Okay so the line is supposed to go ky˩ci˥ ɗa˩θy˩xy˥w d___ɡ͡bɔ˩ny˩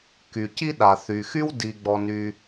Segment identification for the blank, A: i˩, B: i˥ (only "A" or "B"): A